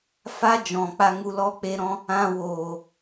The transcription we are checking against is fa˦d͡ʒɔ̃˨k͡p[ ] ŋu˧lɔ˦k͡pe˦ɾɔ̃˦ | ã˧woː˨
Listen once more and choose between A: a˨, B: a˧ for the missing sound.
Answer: B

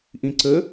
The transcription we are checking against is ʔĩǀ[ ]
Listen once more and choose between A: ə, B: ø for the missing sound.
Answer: A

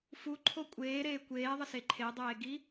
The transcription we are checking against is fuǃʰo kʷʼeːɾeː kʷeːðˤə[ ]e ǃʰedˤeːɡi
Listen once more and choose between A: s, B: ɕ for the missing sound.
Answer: A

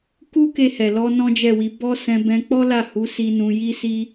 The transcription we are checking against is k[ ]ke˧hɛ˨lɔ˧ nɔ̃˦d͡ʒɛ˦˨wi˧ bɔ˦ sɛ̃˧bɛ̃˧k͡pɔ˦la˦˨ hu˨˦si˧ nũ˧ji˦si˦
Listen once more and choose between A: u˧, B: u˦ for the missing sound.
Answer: B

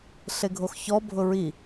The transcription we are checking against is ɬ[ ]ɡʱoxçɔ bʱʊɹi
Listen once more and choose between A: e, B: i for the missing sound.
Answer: A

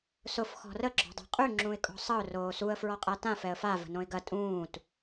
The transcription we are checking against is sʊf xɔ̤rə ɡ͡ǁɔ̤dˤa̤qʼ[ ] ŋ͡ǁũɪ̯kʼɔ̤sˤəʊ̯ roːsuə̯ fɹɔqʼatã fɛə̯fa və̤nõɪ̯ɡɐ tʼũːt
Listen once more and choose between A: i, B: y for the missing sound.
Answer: B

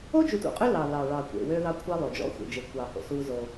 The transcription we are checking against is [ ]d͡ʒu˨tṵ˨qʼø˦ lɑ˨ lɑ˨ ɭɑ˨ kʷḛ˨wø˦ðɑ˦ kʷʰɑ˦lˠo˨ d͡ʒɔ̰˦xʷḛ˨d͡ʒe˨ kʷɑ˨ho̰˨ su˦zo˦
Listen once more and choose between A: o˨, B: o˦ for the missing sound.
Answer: B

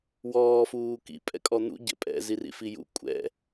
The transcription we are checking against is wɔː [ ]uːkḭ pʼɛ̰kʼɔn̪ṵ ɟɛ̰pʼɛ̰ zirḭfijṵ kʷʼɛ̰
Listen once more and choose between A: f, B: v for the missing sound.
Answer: A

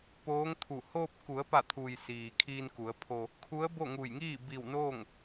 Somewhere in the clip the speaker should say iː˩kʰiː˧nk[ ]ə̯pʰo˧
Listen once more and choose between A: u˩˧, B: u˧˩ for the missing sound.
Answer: A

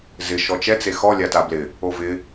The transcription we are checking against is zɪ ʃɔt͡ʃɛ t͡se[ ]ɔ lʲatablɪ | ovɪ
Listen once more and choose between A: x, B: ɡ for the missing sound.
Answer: A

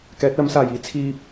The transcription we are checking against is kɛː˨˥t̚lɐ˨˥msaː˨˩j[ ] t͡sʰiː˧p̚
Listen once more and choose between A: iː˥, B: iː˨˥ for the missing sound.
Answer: A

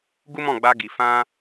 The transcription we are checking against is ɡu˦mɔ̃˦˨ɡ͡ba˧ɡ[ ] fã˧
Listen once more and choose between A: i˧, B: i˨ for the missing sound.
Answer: B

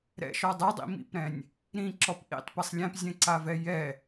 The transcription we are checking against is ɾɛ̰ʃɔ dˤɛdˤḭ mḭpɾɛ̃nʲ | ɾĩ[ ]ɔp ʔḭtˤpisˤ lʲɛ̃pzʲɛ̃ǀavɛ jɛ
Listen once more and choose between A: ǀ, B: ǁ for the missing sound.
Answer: B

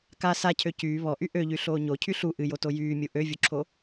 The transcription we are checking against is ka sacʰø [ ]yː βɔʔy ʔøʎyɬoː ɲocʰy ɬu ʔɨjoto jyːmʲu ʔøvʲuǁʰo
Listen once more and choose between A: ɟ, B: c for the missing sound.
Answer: B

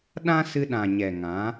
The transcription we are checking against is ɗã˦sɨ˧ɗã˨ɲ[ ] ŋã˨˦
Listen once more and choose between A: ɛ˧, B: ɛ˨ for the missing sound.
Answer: B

